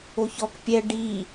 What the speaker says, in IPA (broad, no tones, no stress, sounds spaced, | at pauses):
o ç ɔ k pʲ ɛ ɖ i